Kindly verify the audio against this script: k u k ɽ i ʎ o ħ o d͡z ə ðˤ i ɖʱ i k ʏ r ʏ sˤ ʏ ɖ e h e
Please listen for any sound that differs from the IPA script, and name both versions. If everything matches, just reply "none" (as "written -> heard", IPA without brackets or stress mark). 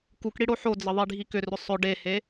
ʎ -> ɽ